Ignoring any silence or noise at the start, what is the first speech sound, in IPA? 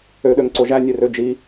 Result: ø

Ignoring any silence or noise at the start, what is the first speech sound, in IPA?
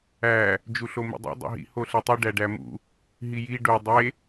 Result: æ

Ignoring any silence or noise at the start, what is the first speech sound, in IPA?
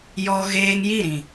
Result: j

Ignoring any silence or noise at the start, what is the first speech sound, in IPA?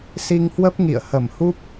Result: s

